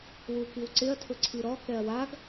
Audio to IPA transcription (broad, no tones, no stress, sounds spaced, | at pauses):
w u k i w ǀ ɪ ɐ̯ tʰ ʊ ǀʰ i ɾ ɔ k ɛ ɐ̯ w a ɡ